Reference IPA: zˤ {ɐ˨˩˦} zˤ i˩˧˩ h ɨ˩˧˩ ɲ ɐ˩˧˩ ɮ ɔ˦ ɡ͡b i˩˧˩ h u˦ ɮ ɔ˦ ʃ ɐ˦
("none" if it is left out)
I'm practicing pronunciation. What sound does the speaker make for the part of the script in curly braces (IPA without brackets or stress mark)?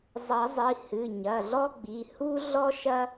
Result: ɐ˨˩˦